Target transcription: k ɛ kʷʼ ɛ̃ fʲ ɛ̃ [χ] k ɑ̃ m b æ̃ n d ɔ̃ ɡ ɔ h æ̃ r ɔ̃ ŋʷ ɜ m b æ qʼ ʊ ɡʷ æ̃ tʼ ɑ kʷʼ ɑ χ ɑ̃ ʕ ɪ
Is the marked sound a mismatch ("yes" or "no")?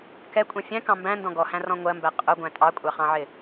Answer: yes